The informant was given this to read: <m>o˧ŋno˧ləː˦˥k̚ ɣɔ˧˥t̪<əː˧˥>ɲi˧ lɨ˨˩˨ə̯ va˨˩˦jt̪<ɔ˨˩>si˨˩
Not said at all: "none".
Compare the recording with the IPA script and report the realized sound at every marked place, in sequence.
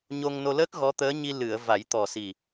ɲ, əː˧˥, ɔ˨˩

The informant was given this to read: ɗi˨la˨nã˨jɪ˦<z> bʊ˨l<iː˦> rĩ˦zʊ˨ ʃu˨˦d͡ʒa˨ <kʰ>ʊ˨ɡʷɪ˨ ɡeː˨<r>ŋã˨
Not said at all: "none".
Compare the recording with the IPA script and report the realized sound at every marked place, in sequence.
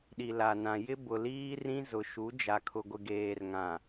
none, iː˦, kʰ, r

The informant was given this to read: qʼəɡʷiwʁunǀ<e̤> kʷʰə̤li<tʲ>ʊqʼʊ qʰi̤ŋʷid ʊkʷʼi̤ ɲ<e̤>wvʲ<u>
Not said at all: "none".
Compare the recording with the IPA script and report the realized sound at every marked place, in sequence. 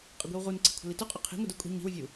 i̤, t, i̤, u

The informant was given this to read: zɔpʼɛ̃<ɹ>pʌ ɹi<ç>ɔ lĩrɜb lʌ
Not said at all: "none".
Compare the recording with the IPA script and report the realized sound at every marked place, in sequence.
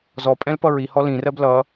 l, h

